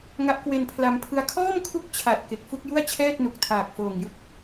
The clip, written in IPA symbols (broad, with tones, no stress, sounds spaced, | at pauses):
ŋ a˦˥ ʔ k w e˧ n pʰ l a˧ m pʰ ɯ˦˥ a̯ kʰ ɔː˥˩ m kʰ u˦˥ k̚ t͡ɕʰ a˨˩ t̚ k e˨˩ k̚ f u˥˩ k̚ j u˥˩ a̯ t͡ɕʰ ɛː˥˩ t̚ n u˨˩ k̚ tʰ aː˨˩ k̚ f oː˨˩ ŋ j ɯ˥˩ k̚